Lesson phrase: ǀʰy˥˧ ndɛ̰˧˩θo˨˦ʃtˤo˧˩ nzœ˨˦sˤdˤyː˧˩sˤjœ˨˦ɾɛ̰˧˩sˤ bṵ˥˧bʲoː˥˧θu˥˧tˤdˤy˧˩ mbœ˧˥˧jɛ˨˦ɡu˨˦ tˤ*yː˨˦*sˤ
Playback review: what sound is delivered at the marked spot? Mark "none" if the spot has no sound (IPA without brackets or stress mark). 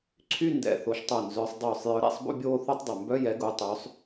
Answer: øː˨˦